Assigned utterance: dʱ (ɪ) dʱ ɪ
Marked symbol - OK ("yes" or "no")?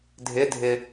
yes